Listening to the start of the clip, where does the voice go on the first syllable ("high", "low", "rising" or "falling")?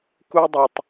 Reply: high